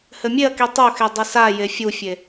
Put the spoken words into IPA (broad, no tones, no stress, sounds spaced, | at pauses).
h ɘ mʲ e ɐ̯ k i tˤ o x e dˤ ɨ s a j e fʲ u fʲ e